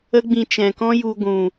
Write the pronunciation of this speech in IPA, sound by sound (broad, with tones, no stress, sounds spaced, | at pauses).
ə˦ ɡ͡b ĩ˧ t͡ʃ ɛ̃˨ k ɔ̃˦ j u˧ ɡʷ ũ˨